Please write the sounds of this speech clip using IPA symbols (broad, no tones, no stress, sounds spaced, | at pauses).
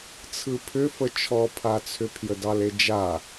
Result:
t͡sʰ ɯ pʰ ʏ f ə t͡ʃʰ ɔ pʰ a t͡sʰ ʏ pʰ j ə d ɑ l e d͡ʒ a